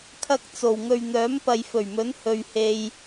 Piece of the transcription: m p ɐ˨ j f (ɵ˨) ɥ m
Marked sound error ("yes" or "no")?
yes